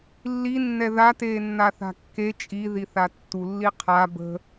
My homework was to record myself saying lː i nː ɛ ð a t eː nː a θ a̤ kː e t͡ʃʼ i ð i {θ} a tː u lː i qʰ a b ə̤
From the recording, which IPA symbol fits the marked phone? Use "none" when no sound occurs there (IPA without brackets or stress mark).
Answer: θ